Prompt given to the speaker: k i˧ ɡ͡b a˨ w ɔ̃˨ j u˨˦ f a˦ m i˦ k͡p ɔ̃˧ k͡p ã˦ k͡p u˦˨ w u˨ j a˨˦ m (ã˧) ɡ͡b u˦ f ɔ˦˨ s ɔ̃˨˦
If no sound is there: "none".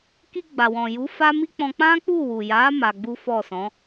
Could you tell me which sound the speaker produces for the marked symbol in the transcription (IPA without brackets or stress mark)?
a˧